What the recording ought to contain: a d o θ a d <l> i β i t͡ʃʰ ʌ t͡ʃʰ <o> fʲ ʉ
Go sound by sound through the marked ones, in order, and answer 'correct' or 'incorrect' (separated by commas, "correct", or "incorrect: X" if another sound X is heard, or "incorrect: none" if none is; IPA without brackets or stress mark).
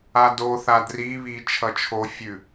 incorrect: r, correct